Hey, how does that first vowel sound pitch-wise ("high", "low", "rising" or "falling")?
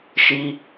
low